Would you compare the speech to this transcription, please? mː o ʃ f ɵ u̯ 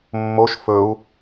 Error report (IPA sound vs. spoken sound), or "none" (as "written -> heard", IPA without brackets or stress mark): none